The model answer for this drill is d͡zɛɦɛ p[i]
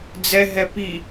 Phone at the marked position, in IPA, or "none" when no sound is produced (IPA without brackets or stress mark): i